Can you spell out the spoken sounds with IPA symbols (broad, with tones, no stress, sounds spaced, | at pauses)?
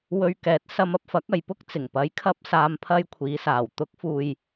w ɵ˧ ɥ k ɛː˨˥ t̚ s ɐ˧ m ɐ˧ p̚ f ɐ˨˥ k̚ ɐ˨ j p ʊ˥ k̚ t͡s ɪ˨˩ ŋ p ɐ˨˥ j kʰ ɐ˧ p̚ s aː˨ m pʰ ɐ˧ j kʷʰ iː˨˧ s aː˨˩ w t̪ ʊ˨˥ k̚ f uː˨ j